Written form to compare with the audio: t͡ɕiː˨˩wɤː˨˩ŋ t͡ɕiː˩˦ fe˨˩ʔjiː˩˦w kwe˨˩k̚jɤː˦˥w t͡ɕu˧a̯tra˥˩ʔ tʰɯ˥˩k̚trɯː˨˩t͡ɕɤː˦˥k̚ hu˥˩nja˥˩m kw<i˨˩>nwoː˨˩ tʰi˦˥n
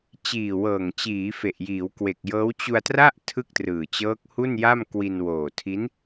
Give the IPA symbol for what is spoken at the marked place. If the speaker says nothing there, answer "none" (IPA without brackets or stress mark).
i˧